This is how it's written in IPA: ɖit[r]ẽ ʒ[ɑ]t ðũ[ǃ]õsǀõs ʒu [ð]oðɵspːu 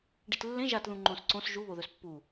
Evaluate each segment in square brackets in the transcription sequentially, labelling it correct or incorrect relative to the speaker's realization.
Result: incorrect, incorrect, incorrect, incorrect

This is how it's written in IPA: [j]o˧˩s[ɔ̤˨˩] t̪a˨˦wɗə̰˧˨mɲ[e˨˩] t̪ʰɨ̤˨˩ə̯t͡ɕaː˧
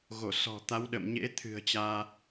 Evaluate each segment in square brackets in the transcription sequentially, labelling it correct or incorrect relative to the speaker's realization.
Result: incorrect, correct, incorrect

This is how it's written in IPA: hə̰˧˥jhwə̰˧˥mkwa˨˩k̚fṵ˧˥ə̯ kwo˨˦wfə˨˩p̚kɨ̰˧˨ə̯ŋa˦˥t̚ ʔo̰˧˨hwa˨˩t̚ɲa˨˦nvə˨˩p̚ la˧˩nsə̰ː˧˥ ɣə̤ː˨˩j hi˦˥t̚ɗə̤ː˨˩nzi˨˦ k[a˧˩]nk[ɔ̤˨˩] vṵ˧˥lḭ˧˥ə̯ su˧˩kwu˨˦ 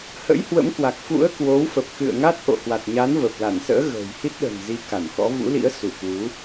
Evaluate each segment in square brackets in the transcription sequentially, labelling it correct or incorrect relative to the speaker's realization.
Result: correct, incorrect

